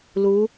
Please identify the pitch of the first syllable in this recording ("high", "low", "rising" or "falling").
rising